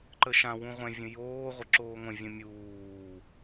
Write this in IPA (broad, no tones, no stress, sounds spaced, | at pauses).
ǃ ə ʃ ã w ũ ʁʷ ɛ̃ vʲ ə̃ j oː ʁʷ ə ǁ oː ŋʷ ə̃ vʲ ə̃ mʲ uː